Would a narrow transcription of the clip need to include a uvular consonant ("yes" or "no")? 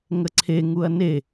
no